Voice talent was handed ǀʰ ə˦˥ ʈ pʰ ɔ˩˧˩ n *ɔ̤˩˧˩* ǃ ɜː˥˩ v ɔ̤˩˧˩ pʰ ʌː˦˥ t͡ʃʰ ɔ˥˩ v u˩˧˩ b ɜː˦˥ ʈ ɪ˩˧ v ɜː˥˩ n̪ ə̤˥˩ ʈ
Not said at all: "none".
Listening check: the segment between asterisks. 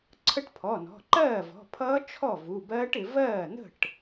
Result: ɔ̤˩˧˩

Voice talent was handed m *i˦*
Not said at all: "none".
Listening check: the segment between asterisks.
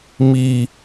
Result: i˦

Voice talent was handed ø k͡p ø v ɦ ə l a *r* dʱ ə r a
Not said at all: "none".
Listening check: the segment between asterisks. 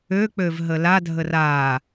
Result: none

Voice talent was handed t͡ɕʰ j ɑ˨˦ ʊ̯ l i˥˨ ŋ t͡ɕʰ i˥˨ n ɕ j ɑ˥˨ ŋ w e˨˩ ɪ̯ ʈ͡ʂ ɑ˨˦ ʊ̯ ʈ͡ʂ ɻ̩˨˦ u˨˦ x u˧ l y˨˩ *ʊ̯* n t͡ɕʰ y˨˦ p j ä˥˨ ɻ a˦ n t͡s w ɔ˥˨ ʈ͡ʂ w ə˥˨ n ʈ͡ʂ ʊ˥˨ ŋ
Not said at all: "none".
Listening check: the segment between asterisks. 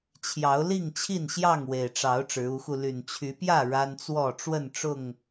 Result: none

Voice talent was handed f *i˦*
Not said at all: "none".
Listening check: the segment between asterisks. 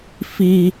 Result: i˦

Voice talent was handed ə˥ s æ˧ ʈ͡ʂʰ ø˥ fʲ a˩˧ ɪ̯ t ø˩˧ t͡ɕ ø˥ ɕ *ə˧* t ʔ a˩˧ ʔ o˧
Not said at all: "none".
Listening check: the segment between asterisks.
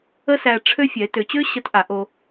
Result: ə˧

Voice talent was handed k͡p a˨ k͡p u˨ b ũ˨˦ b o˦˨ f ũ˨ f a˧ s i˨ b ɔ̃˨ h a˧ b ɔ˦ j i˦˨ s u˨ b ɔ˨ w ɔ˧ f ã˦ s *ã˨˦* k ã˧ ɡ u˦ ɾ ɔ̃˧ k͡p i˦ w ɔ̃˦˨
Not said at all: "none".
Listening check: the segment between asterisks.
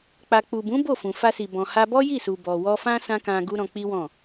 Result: ã˦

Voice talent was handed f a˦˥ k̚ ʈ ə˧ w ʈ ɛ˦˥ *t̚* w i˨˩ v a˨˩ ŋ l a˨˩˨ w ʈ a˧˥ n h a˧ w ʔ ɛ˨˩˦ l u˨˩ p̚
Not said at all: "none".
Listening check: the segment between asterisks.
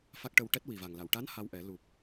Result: t̚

